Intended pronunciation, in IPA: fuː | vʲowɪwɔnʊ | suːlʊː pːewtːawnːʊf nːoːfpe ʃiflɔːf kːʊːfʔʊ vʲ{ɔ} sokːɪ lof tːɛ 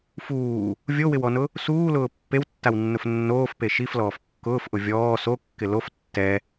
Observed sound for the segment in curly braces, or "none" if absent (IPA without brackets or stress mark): ɔː